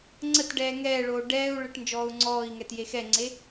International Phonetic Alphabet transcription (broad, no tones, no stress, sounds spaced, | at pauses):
ŋ͡ǀ ə t ɖ ɛː ŋ ɛː ɭ oː ɖ ɛː u̯ ɭ ə ʈ n d͡ʒ ɔː u̯ ŋ͡ǀ ɔː i̯ ŋ ɛ t j e x ɛ ŋ͡ǀ e